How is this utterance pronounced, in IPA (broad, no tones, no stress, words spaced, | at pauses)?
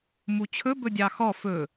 mut͡ɕʰɵ bɵdʲɑxɔ fɵ